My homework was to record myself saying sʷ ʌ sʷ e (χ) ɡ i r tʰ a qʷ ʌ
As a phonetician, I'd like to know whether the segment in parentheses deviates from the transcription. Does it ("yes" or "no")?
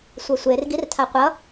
yes